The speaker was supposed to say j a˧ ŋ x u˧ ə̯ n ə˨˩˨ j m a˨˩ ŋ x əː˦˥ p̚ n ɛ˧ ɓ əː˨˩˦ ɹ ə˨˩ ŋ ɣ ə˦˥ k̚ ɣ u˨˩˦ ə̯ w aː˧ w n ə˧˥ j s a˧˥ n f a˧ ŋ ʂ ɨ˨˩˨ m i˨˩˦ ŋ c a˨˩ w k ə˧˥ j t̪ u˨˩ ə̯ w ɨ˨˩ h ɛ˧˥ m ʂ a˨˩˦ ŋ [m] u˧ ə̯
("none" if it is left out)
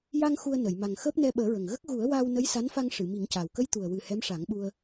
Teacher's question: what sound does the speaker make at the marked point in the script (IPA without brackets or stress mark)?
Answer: ɓ